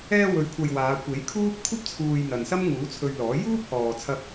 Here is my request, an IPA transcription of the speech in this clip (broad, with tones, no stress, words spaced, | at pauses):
ɛː˧wɵ˨˧ɥkʷʰɐ˨j waː˨˧ kʷe˨˥jkʰuː˥p̚ kʷʰɐ˥p̚t͡sʰuː˨j n̪ɐ˨nsɐ˥m ŋuː˨˥ t͡sʰɵ˧ɥlɔː˨˥ juː˥p̚hɔː˨t͡sʰɐ˧p̚